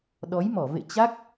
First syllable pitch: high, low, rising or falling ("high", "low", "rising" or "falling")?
rising